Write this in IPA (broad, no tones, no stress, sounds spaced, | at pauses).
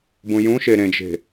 b ũ j ũ ʃ e ɾ ẽ d͡ʒ e̤